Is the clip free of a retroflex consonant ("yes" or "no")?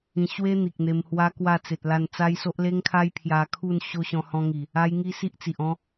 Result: yes